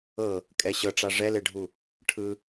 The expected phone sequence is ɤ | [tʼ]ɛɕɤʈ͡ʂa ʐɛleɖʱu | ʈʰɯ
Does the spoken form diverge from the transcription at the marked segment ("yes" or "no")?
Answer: yes